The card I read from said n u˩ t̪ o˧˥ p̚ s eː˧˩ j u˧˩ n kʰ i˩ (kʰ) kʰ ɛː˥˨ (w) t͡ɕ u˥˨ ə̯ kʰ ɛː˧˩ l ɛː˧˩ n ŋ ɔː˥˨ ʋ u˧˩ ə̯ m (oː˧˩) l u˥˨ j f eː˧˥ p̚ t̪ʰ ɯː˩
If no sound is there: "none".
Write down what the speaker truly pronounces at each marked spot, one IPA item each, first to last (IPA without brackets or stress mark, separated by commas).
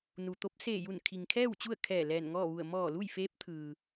ŋ, w, ɔː˧˩